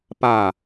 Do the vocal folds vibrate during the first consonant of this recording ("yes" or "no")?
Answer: no